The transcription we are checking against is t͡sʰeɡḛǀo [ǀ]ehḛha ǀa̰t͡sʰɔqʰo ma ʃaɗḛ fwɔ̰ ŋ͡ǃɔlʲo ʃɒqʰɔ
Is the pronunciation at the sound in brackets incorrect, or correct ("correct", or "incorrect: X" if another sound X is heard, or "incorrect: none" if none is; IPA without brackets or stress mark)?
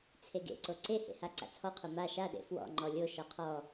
correct